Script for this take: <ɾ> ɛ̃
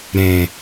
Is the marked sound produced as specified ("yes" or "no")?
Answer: yes